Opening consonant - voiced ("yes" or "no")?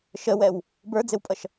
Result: no